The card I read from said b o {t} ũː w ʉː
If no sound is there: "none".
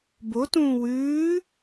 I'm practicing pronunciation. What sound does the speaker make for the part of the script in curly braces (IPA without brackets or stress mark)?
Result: t